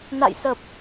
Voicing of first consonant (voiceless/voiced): voiced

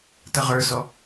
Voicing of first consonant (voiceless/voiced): voiceless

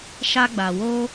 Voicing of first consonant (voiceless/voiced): voiceless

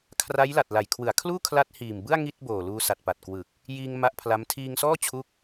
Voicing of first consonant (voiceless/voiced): voiceless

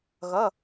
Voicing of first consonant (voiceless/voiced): voiced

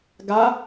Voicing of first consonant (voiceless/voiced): voiced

